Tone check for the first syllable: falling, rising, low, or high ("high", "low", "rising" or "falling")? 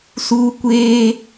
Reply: high